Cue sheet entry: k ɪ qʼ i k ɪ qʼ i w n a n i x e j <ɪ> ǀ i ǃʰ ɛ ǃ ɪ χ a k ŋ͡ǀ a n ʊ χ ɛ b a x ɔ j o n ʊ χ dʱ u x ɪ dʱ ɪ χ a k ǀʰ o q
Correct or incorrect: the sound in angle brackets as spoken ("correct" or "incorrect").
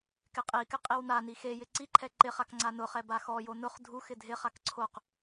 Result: correct